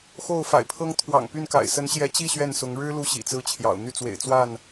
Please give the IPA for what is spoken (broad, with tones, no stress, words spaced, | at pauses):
xo˥˨ʊ̯fa̰˨˩ɪ̯pʰɤ˦ŋ t̪ʰwɑ̰˨˩ŋpy˥˨nka̰˨˩ɪ̯ sə˨˦nɕjɛ˨˦t͡ɕi˥˨ ɕɥɛ˥˨n sʊ˨˦ŋ ɻɻ̩˦ lu˦ɕḭ˨˩t͡sɹ̩˦t͡ɕʰjɑ̰˨˩ʊ̯ n̪y˥˨t͡swḛ˨˩ɪ̯ t͡swa˥˨n